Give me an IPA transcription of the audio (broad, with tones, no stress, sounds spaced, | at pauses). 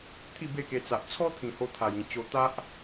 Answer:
t̪ʰ i˥˧ b e˥˧ k e˧ t͡s a˨ ʔ t͡sʰ ɔ˦ t̪ʰ ĩ˨˩ h o˧ t̪ʰ a˨˩ j ĩ˨˩ t͡ɕ o˧ t̪ a˦ ʔ